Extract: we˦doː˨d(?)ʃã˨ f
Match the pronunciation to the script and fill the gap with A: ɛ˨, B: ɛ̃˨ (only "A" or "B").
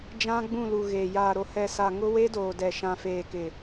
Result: A